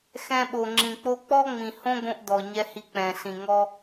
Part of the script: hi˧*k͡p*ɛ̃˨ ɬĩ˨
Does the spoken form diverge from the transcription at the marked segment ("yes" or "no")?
no